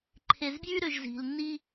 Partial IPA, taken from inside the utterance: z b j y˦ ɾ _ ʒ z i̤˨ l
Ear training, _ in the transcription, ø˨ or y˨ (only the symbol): ø˨